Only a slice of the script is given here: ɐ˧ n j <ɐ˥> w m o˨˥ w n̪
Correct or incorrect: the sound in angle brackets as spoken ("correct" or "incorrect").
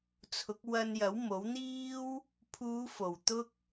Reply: incorrect